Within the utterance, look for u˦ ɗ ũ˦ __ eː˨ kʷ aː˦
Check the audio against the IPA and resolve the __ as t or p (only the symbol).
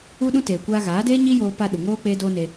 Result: t